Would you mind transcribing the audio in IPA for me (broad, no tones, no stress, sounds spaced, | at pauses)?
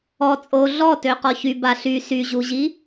ɔ t͡sʼ o ɮ ɔ t ø q ɔ ç y b a ɬ y s y ʑ u ʑ i